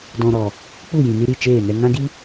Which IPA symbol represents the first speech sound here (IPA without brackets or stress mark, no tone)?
d